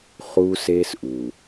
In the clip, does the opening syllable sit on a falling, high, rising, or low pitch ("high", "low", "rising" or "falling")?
high